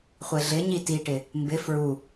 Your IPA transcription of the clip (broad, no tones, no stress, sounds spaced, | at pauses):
χʷ e ɮ ɪ ɲ i t i ʈ ɪ | m b ɪ f ɹ u